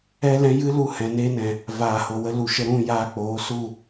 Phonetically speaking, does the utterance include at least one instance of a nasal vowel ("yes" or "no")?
yes